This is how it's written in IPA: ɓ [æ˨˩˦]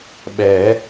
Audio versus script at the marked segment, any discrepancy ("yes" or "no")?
yes